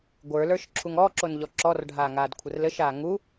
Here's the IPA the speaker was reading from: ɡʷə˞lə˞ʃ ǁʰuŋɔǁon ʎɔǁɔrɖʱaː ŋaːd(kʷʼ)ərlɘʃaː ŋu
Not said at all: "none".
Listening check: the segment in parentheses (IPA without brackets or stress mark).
kʷʰ